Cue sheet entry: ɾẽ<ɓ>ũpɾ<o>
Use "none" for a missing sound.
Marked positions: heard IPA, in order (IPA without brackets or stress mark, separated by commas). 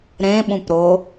ɓ, o